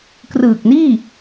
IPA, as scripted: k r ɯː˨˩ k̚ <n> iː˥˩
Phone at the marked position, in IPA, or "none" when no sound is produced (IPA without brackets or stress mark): n